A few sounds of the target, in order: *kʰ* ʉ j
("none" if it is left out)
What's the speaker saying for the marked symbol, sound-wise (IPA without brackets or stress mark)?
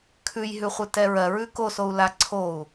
kʰ